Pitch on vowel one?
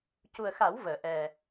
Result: low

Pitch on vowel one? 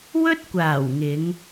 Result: high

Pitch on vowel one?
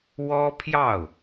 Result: high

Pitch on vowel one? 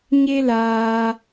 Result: high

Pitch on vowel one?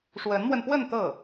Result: rising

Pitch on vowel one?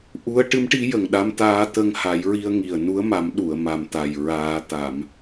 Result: rising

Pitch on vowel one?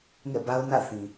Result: falling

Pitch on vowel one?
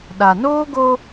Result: low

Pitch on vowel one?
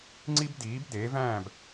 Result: high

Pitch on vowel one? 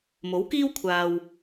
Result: rising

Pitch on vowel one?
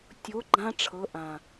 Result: rising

